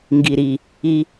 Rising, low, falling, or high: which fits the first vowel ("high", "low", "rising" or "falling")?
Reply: low